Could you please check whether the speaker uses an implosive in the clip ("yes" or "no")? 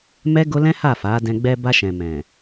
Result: no